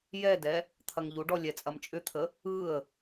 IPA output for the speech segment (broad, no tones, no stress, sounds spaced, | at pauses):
j ɛ d ɛ | t̪ʰ ɐ ŋ ʎ u ɖ ɔ lʲ ɛ t͡sʼ ɐ m t͡ʃʼ ʏ t̪ʰ ə | ɯ ə̯